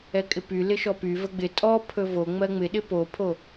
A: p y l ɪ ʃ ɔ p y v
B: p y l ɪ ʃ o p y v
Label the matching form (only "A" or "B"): A